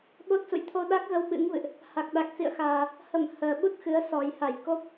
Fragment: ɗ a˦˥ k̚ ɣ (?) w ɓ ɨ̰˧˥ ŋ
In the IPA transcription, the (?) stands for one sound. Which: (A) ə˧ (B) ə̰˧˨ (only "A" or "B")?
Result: A